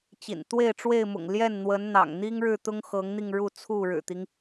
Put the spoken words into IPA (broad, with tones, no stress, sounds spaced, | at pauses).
t͡ɕ ḭ˨˩ n t̪ w e˥˨ ɪ̯ ʈ͡ʂ w e˥˨ ɪ̯ m ʊ̰˨˩ ŋ l j ɛ˥˨ n n̪ w ə˨˦ n n̪ ɑ̰˨˩ ŋ n̪ i˦ ŋ ɻ ɻ̩˥˨ t̪ ʊ˦ ŋ x ɤ˨˦ ŋ n̪ i˧ ŋ ɻ u˥˨ t͡sʰ u˥˨ ɻ ɻ̩˨˩ t̪ i˦ ŋ